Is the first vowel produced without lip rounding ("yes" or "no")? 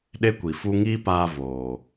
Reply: yes